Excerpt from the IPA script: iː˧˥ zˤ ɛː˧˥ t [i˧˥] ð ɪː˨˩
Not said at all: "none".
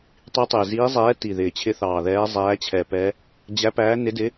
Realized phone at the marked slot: i˨˩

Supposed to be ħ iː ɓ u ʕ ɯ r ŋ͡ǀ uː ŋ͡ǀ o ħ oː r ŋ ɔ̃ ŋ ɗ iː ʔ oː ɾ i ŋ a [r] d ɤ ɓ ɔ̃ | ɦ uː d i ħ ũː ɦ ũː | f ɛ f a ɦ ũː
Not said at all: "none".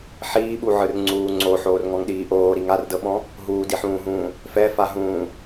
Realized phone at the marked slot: r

